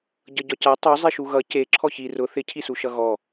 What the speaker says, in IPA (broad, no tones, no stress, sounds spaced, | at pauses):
ɟ ʌ ɟ ɒ c a tˤ u zˤ i ʃ u ɣ ʌ c e ǁʰ ɔ ç i r ʊ θ ɪ cʰ i s u ʃ ʌ ɣ ɔ